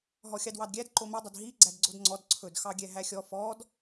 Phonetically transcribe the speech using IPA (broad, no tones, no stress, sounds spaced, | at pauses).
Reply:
ɦ ɔ xʲ ɑ d w ɑ d ɡʲ æ d ǃ o m ɛ dˤ ɵ d ɦ i ɡ͡ǀ æ d ɡ͡ǀ o d ŋ͡ǀ ɔ d ǀʰ ɵ d x ɑ ɡʲ ɛ ɦ æ xʲ ɔ f ɔ d